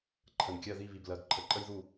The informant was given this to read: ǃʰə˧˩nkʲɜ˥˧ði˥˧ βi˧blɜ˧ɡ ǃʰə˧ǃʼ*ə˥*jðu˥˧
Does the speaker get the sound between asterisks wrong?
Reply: no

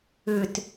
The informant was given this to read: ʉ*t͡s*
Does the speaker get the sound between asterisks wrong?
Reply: yes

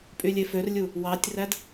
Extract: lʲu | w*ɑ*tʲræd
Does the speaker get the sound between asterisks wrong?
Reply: no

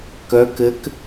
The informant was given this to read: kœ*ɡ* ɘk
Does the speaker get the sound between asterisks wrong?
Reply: yes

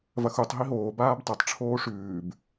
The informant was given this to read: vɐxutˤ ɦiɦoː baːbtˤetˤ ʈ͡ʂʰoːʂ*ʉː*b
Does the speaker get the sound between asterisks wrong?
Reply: no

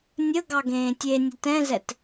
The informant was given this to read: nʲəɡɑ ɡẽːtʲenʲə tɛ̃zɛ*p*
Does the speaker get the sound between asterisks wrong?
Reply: yes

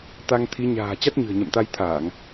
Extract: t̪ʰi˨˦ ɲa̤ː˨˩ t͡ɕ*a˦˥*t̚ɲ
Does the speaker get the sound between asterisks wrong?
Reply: no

